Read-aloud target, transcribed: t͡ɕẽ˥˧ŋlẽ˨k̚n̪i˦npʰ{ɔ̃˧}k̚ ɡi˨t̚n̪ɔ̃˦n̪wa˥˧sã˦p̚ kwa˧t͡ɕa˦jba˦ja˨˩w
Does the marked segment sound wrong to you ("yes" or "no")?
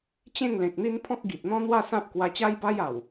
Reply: yes